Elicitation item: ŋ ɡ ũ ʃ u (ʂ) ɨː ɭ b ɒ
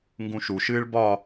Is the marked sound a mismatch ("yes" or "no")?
yes